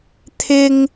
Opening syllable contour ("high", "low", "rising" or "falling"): high